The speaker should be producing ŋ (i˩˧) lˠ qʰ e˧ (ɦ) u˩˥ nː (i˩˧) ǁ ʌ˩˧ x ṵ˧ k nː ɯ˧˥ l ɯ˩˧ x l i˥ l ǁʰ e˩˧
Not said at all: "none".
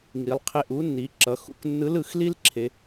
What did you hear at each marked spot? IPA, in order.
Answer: i˩˧, ʔ, i˩˧

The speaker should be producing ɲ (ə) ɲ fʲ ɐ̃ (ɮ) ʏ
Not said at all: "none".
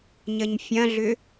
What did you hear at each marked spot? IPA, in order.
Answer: ə, ɮ

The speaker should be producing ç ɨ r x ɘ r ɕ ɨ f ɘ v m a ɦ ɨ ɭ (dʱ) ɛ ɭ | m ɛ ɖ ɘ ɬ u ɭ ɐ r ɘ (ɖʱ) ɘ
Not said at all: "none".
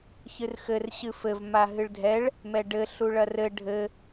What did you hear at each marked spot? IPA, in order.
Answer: dʱ, ɖʱ

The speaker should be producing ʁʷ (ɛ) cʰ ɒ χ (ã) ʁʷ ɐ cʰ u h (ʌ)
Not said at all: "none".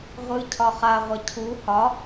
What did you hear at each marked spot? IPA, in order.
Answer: ɨ, a, ɒ

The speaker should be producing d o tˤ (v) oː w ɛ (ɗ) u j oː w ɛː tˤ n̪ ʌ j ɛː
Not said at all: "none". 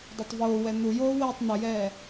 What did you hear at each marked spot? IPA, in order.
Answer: v, n̪

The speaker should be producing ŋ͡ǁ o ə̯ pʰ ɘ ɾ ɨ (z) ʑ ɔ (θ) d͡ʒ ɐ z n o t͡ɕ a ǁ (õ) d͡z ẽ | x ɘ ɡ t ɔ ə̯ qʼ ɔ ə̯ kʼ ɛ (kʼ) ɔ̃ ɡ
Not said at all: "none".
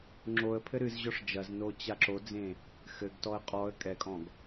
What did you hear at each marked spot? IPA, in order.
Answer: z, ʂ, o, kʼ

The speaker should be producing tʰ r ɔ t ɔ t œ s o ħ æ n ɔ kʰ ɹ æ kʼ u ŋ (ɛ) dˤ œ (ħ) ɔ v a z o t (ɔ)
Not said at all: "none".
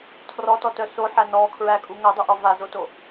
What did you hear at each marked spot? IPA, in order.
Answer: œ, ʔ, o

